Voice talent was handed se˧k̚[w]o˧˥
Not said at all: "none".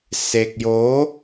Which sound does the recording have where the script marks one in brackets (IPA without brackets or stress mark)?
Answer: j